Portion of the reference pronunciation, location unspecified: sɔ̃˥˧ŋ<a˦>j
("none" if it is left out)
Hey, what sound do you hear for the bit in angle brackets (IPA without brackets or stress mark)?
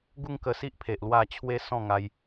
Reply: a˧